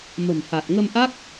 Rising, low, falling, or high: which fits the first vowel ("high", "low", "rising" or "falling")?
low